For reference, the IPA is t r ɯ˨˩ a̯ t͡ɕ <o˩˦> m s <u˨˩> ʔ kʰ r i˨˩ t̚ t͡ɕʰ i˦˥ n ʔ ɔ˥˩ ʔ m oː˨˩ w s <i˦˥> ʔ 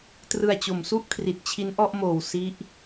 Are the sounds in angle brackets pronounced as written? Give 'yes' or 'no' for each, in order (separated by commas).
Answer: yes, no, yes